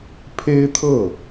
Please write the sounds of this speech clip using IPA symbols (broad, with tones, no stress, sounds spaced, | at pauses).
pʰ e˥ ɪ̯ t̪ʰ ɤ˥˩